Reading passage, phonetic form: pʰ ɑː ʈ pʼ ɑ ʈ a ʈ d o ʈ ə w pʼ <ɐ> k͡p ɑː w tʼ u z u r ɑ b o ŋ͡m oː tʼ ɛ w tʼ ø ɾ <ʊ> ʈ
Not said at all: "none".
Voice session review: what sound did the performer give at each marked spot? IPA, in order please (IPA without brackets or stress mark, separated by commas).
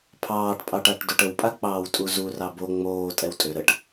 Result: a, ə